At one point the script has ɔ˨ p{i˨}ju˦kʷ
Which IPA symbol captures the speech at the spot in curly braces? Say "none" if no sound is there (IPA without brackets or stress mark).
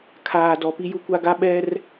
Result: i˦